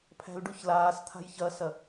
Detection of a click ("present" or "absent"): absent